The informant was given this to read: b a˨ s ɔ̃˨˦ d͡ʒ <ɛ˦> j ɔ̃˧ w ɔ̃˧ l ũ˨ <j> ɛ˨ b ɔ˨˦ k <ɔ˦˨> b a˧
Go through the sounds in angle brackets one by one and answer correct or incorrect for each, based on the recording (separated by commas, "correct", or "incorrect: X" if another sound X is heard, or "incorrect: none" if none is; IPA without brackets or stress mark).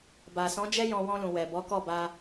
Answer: correct, incorrect: w, correct